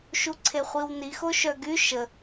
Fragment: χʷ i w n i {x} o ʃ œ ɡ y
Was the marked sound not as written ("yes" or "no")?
no